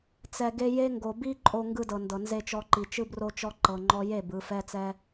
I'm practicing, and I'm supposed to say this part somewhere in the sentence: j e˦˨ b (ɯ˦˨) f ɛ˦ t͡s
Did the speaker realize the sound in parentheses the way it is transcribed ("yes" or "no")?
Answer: no